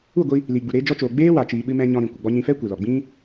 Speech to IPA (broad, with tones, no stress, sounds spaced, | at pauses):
u˦˨ ɡʷ i˧ | l i˨ ɡ͡b u˨ ɾ eː˧ d͡ʒ ɔ˧ t͡ʃ oː˨ ɡ͡b eː˦ w a˨ t͡ʃ iː˨ ɓ ɨ˧ m ɛ̃˧ ɲ ɔ̃˧ ɾ ĩ˨ kʷ ə˨ ɡ͡b ɔ˧ ɲ ĩ˧ f ɛ˦ kʷ e˨ l ɔ˨ ɡ͡b ĩ˦